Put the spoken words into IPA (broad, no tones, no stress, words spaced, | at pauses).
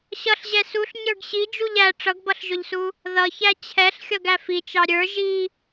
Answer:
ɕʌɬʑɛ suɬ ɲə˞ɡɕi d͡ʒuʎæ ʈ͡ʂʌɡbʌɬʒʊʎsu | ðʌçæ t͡ɕʰɛɬxʲʌɡæ fit͡ʃɑ ɾʲə˞ ʒi